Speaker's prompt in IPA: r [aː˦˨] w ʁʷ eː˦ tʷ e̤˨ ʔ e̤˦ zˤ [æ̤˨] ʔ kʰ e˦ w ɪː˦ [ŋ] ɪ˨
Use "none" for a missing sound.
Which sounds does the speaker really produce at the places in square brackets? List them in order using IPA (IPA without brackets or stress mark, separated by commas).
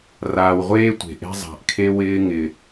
aː˨, a̤˨, ŋ